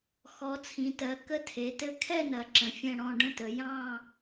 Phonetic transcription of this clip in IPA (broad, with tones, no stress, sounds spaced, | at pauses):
x ɔ˩˧ t͡sʰ ĩ˩˧ t ɜ˩˧ k ə˥˧ tʰ e˩˧ t ɘ˥˧ kʰ ɛ˥˧ n ɐ˩˧ ǁ ə̃˩˧ fʲ ɛ̃˥˧ ɽ ɔ̃˥˧ ɖ ə̃˥˧ t ə˩˧ j ɑ̃˥˧